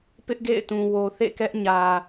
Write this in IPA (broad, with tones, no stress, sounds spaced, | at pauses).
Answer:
p ɪ˦ ʔ ɡ ḛ˦˨ ɪ̯ t ũ˨ w o˨ θ ḛ˦˨ k ɛ˦ ʔ ɲ ä˨